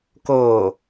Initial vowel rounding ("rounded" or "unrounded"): rounded